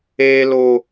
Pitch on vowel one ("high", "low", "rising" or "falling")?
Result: high